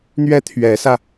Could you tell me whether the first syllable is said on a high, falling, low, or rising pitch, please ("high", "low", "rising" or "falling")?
high